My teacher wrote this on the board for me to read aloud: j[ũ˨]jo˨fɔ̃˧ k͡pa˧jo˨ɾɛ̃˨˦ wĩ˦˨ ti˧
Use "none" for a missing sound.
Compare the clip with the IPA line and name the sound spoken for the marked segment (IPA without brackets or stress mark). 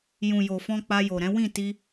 ũ˨